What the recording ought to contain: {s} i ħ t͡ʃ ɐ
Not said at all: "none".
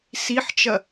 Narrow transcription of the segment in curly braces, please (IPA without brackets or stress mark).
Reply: s